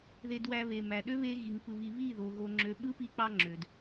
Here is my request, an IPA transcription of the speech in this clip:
ð e˧ d w æ˧ β e˨ m æ˨ ɗ ø˦ β e˧ ɣ i˨ ŋ p ɯ˧ β i˧ β i˦˨ ð o˨ ɣ o˧ ŋ͡ǁ ø˧ ɓ ɯ˦ p i˧ k͡p ɑ˧ ŋ͡ǁ ø˨ d

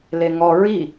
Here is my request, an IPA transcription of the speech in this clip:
l e ŋ ɔ ɹ i

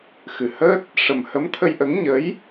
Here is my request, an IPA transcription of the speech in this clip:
x ɨ˨˩ h əː˦˥ t̚ | ʂ ə˨˩ m h ə˧˥ m t̪ʰ ə˧ j ʔ ə˧˥ ŋ ɲ ə˧˥ j

